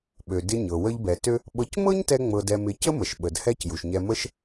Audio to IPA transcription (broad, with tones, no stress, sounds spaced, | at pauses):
ɓ ø˩ d ɪ˧ ɲ ɤ˩ w ə˧ ʎ b ɛ˩ t ø˥ | ɓ ɤ˧ c m ɤ˥ ɲ t ɛ˧ ŋ͡m ɤ˧ d ɛ˧ m ɪ˧ c ə˥ m ə˩ ʃ ɓ ə˩ d h ɛ˥ c j u˩ ʃ ɲ ɛ˧ m ə˥ ʃ